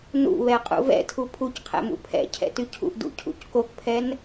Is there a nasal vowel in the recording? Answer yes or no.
no